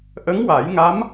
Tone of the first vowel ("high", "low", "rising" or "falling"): rising